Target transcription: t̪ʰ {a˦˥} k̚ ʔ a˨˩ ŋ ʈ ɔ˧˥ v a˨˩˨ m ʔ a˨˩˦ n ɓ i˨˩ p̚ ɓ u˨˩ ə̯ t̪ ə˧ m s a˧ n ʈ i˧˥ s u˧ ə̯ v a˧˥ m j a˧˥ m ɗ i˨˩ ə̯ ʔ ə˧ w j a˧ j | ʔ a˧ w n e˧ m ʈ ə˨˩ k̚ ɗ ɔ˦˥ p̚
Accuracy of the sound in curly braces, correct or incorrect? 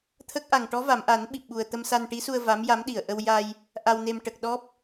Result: incorrect